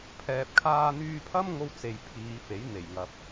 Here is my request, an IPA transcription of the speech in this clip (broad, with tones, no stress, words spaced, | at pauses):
pʰɛː˨p̚kʰaː˧n̪yː˧pʰɐ˥m ŋo˥wt͡se˨jpʰiː˨˧ fe˨˥jn̪e˨˩jŋɐ˨p̚